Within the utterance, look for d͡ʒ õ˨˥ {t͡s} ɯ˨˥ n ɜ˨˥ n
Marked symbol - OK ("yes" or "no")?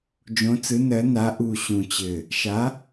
yes